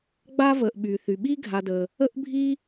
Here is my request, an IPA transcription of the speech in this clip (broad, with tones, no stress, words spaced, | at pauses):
ɡ͡ba˥və˨ʔ ɓy˩θy˩ɓi˥ ɡʱa˨də˩ | ə˦ʔbʱi˦